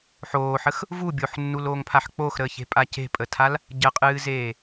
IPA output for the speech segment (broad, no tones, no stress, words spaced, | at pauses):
ħoːħəx | vu bʲoħnːuloːŋpʰaħ k͡poxɾəːçe̤pʼa ce̤pʼətʰal | ɟəqʼɨːzeː